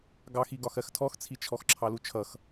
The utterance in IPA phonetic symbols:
ɡ ɑ x i ɡ ɒ x ɜ x tʰ ɔ x t͡sʰ i t͡ʃʰ ɔ x ǁʰ ɑ l u t͡ʃʰ ʌ x

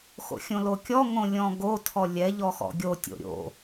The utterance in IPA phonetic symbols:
x o̰ xʲ õ l o kʲ ɔ ŋ õ lʲ ɔ̃ ɡ o tʰ ɔ lʲ ɛ ʎ ɔ x ɔ̰ ɡʲ o tʲ o̰ ɾʲ o̰

